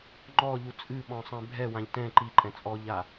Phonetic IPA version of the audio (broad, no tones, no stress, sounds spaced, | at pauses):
ŋ͡ǃ ɔ ʎ u t͡sʼ ɨ ɓ ɔ̃ sˤ ɛ̃ bʱ ɛ w ã ʎ t ɛ̃ ǃ i ǃʼ ɛ̃ t͡sʼ ɔ ʎ a